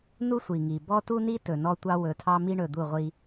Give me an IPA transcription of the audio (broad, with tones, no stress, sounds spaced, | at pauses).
n u˦ sʷ i˨ ŋ i˨ b ɔ˦ t u˦ n i˦ t ɵ˨ n ɔ˦ tʷ ɑ˦ w ɵ˨˦ tʰ ɑ˦ m i˦ ɳ ɵ˨ d̪ u˦˨ ʁʷ i˦